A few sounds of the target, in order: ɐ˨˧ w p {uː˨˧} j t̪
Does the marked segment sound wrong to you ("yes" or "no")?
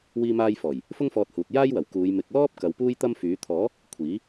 yes